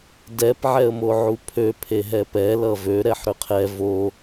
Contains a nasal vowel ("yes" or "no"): no